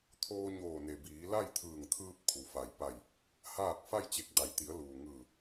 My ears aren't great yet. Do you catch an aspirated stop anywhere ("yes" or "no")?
yes